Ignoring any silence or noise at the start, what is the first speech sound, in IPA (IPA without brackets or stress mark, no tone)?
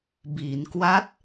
b